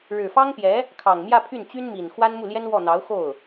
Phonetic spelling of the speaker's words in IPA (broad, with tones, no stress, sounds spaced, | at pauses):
ɻ ɻ̩˨˩ f ɑ˥ ŋ p j ɛ˧˥ | kʰ ɑ˨˩ ŋ m j ä˥˧ pʰ y˥˩ n t͡ɕ y˥ n m i˨˩ n x w a˥ n m u˥˩ l j ɛ˥ n w ɔ˥˩ n̪ ɑ˧˥ ʊ̯ x o˥˩ ʊ̯